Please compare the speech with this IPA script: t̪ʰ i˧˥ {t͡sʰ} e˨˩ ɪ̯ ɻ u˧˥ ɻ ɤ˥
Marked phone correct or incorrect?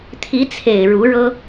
correct